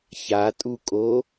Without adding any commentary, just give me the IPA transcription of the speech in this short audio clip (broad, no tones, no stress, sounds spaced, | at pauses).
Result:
ç a tʼ u kʼ o